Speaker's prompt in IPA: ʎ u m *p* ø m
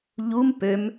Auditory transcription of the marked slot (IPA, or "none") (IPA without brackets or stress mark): p